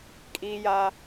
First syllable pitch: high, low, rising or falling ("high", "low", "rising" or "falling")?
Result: high